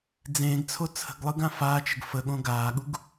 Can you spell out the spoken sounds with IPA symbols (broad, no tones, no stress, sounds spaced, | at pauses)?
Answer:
d͡z ẽː ɡ t͡sʰ o t͡sʰ ə̤ ɡ lˠ ɯ ɡ ã f aː t͡ʃ ə ɡ f ə ɠ õ ɡ aː ɠ u ɡ